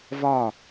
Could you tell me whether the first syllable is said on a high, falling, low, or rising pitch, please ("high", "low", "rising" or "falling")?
falling